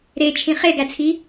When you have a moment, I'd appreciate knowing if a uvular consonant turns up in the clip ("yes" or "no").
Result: yes